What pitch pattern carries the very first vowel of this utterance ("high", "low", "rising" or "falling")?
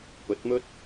rising